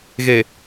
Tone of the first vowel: low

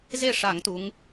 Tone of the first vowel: falling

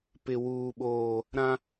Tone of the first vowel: low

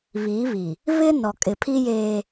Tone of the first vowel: rising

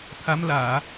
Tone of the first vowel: rising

